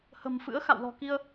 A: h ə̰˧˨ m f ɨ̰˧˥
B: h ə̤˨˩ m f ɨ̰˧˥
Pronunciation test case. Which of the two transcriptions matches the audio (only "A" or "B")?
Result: B